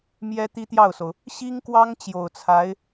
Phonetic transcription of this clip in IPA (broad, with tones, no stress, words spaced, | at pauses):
mjɛ˥t̪i˥t̪jɑ˥˩ʊ̯so˩ʊ̯ | ɕi˥ŋkwɑ˥ŋ t͡ɕjo˨˩ʊ̯t͡sʰa˧˥ɪ̯